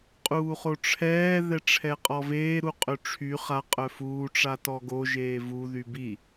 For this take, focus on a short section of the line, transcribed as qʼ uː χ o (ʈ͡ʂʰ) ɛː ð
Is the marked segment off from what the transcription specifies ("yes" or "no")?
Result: no